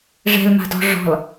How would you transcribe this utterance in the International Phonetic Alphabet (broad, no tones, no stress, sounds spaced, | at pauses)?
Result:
ʐ ɛ̤ l m a̤ d ɔ̤ ʐ ɔ̤ l